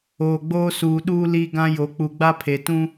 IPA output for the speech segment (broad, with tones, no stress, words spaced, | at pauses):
oː˨ɡ͡boː˦suː˨ ɗuː˦li˦ɡã˦jo˨˦ k͡pu˨ɡ͡ba˦pʰe˨ tũ˦